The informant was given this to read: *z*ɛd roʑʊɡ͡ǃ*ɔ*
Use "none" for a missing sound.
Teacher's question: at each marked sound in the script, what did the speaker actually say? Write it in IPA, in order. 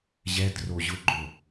ʑ, o

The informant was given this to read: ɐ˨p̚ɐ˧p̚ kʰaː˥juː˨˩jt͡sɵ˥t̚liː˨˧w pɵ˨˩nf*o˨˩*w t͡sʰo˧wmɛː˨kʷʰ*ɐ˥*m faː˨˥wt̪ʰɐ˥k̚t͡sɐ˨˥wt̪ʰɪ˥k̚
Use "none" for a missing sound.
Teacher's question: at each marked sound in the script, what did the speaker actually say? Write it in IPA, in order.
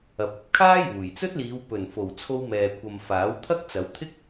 o˨˩, ɐ˨

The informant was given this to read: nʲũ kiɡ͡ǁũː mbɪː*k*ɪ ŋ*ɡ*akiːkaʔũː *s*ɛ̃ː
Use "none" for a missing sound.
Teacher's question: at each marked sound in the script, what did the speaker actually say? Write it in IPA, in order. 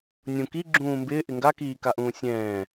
ʔ, ɡ, sʲ

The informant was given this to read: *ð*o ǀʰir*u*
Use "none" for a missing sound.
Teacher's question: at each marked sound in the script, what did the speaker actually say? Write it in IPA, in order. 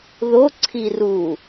ð, u

